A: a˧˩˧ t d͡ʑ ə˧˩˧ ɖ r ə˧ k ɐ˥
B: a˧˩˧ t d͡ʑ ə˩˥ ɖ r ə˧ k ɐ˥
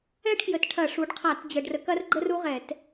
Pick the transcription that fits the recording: A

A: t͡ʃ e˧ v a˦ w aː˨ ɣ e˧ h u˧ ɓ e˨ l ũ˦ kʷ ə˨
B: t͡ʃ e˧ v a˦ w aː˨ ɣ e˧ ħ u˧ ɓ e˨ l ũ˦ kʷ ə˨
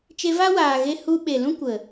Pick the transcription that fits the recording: A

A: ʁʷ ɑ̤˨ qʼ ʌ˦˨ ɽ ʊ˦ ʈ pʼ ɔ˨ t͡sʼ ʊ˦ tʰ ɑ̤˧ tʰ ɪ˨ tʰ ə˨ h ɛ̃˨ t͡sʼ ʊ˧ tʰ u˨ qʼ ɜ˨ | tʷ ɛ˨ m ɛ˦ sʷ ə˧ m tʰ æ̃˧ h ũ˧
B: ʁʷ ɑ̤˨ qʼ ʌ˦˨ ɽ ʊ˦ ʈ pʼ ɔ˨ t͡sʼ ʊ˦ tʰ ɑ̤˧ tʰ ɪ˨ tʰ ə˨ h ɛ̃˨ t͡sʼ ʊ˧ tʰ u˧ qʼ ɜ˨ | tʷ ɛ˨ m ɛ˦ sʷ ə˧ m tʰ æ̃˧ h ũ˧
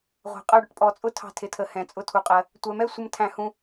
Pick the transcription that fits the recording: A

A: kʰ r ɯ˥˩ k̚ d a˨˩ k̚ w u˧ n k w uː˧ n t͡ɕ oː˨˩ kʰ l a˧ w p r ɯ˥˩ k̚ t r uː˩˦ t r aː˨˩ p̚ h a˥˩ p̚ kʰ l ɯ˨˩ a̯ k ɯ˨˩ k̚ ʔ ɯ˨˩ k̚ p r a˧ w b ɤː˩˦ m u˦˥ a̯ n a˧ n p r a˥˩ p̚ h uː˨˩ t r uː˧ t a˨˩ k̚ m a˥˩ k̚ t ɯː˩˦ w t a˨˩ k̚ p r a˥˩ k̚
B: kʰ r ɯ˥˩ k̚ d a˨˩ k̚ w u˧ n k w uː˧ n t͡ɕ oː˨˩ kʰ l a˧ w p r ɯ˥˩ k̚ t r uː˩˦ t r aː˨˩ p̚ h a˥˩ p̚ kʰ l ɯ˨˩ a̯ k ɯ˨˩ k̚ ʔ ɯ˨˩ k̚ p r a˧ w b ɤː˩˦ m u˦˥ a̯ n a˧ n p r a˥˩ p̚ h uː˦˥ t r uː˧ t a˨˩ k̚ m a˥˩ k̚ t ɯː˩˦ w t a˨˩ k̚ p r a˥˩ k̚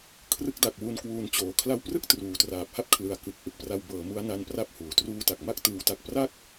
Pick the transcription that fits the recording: A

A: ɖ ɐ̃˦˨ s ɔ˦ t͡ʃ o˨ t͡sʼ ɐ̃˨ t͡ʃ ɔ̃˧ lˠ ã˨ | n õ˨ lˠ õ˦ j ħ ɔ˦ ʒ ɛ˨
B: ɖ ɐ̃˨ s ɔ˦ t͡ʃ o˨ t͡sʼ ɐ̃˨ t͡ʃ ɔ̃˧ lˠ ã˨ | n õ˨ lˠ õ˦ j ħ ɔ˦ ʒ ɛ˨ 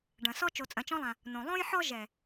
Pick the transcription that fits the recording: B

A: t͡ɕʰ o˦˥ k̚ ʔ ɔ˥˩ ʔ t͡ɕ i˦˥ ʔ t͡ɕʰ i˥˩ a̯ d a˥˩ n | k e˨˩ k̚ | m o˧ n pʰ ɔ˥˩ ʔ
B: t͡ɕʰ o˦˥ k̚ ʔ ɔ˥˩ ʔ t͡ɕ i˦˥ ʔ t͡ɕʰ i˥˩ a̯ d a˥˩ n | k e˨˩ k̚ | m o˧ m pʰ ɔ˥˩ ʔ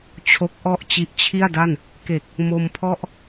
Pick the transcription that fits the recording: B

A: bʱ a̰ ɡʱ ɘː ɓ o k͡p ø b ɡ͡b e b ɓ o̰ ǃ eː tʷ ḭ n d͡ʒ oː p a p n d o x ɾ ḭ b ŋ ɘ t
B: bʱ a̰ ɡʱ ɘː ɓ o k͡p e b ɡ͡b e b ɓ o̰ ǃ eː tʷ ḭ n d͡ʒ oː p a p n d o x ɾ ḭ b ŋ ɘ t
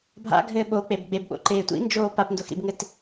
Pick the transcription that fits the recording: B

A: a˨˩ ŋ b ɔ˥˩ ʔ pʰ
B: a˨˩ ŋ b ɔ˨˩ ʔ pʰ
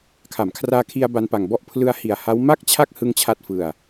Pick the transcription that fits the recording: A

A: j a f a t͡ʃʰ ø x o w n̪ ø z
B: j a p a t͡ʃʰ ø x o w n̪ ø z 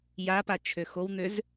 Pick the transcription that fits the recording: B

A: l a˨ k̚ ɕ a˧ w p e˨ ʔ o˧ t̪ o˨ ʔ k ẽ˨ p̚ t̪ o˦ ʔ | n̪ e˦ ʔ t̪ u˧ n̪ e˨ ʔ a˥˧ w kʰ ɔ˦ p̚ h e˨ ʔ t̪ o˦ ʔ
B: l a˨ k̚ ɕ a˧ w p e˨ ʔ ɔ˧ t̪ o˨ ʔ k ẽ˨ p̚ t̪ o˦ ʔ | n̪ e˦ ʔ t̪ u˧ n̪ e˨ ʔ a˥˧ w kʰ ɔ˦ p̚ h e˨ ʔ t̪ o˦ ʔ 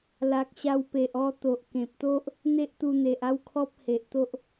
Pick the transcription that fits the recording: B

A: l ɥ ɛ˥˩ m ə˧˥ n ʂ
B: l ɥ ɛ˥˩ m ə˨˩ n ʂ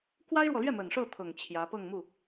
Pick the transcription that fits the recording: B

